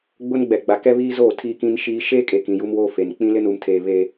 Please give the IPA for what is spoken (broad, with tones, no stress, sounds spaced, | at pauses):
ɡ͡b ʊ˦ n ɡ͡b ɛ˨ ɡ͡b a˨ k ɛ˦ β iː˦ z oː˦˨ tʰ iː˦ k ĩ˦ n ʃ iː˦ ʃ eː˦ kʼ e˨ k ĩ˨ j u˦ m w oː˦ f e˨ n k͡p ĩ˦ l ɪ˦ n u˨ m tʰ eː˨ β e˦